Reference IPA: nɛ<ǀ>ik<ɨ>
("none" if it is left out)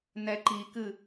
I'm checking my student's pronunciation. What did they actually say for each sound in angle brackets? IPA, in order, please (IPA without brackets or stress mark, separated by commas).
ǃ, ɨ